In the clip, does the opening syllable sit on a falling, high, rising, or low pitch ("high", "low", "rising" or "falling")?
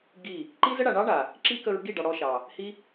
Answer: falling